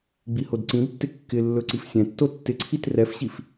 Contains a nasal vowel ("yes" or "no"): yes